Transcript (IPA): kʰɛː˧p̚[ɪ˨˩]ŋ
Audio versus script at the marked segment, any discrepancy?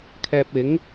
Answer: yes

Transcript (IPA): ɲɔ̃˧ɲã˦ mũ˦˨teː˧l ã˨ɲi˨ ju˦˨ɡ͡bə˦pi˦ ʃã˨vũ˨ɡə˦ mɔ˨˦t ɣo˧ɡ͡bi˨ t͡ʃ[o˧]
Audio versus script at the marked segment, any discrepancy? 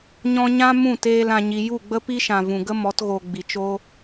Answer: no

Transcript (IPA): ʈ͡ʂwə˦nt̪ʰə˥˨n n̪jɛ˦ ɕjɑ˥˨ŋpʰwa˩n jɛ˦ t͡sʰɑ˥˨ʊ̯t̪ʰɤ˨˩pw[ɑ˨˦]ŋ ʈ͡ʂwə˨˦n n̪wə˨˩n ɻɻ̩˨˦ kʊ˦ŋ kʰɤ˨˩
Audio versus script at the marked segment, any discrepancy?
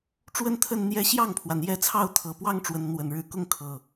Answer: yes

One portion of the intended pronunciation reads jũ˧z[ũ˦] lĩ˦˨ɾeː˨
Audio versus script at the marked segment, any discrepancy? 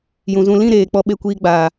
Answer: no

